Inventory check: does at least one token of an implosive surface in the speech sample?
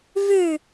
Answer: no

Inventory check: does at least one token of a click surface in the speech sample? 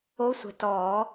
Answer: no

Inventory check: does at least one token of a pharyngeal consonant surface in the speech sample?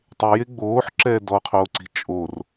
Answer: yes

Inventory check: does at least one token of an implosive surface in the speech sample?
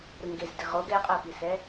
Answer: no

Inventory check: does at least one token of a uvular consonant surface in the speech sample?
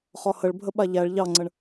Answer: yes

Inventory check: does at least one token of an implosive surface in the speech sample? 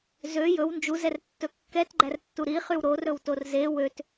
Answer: no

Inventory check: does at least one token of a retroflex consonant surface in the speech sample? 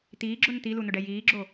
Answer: yes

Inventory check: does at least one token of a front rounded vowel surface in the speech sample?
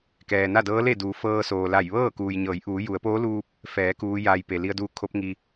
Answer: no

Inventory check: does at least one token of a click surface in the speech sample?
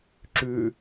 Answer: yes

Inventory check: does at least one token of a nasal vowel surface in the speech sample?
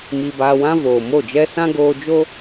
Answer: yes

